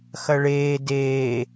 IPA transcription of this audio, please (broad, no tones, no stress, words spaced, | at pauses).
xɐɭeː deː